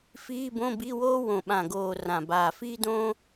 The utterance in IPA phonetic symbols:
f iː˧˥˧ b õ˧˥˧ b i˧˥˧ w oː˥ w õ˨˩ ɓ ã˨˩ ɡ oː˨˩ r ã˨˩ b aː˨˩ f iː˥ d õː˥

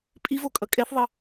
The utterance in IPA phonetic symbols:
pʼ i v o kʼ ʌ kʼ ɛ θ ðˤ ʌ

